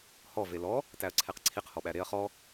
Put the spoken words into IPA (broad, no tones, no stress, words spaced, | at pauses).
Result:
hɔ velɔ | tæɐ̯ǀʰeqǀʰiq hɔɓæɾeɐ̯ χɔ